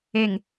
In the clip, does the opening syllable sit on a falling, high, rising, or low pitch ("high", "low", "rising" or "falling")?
low